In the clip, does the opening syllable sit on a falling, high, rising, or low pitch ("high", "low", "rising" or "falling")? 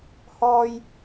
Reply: high